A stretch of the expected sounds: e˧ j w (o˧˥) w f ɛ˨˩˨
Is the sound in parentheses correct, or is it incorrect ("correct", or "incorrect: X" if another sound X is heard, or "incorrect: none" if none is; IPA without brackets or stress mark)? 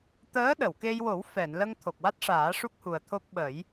incorrect: o˨˩˦